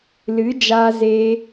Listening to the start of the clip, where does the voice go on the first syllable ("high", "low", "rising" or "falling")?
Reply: rising